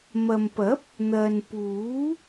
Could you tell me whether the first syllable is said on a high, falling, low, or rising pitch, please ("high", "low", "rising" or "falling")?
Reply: low